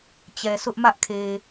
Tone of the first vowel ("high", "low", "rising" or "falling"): low